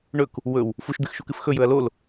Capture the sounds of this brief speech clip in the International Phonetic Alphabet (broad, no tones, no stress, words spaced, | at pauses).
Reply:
ɳɵk | wɵw | fuʃd̪ɨxʃukɨf xɵjɵɐ̯ lol